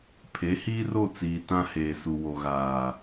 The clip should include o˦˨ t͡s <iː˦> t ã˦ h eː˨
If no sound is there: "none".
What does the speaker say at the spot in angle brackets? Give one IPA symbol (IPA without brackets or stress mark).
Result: iː˨